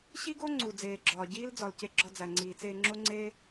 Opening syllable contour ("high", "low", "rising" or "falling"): high